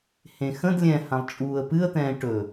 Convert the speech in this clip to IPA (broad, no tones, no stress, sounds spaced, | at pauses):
h ẽ x ə̃ d lʲ ɛ̃ h ã lˠ t͡ʃʼ uː ə̯ p ɨ ə̯ t̪ ɛ̃ː ʈ ɵ